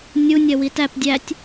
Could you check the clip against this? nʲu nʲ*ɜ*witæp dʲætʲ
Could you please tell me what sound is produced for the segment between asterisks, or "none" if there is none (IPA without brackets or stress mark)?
ɜ